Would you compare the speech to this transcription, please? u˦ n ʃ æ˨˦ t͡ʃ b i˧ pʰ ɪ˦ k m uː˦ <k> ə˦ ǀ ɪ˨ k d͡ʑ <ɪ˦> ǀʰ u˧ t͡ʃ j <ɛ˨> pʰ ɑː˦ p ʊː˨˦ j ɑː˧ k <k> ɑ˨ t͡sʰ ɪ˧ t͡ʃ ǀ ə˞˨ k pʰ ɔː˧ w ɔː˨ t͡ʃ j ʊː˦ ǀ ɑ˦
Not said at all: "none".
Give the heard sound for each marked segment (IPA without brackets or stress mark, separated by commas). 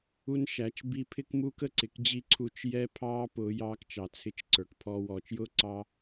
k, i˦, ɛ˦, t͡ʃ